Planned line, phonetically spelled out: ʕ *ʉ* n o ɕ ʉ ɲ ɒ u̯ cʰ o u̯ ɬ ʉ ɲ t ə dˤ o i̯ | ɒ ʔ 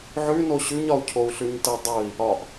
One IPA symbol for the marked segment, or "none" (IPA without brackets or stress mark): ʉ